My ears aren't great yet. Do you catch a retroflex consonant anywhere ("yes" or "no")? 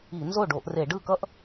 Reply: yes